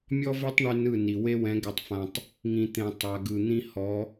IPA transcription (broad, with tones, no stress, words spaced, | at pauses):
mʲɔ˦ve˦tˤ ɳʉ˦nɯ˦˨ni˨ we˦wɛ̃˨˦ ɡɛ˨tˤfã˨tˤ | ŋĩ˨t̪ẽ˨ tˤa˨ɡɯ˨n̪ĩ˦ hɔ˨˦